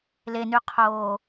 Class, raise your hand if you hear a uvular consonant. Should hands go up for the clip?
yes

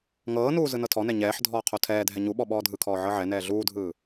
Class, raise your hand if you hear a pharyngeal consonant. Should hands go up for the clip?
yes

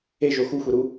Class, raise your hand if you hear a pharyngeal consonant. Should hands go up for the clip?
no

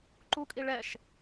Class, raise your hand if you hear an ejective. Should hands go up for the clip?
yes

